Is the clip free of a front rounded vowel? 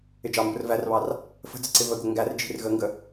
yes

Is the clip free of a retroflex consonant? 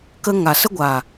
yes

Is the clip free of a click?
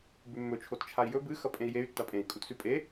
yes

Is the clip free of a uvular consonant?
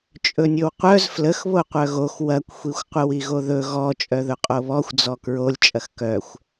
no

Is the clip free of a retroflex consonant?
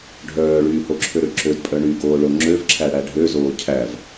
no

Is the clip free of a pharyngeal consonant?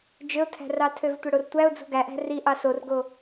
yes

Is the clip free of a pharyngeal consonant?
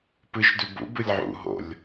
no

